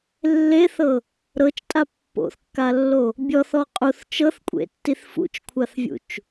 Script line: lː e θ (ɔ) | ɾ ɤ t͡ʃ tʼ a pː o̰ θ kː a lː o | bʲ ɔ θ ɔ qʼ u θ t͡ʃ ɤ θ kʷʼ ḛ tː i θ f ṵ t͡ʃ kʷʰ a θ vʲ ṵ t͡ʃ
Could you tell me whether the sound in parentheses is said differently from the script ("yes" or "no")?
yes